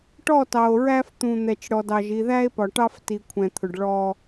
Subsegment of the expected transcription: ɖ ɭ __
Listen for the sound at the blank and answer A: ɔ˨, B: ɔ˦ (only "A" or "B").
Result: B